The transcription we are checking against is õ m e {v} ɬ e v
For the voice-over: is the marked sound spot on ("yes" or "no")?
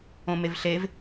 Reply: yes